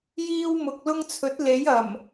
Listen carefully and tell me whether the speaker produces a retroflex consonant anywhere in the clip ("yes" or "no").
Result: no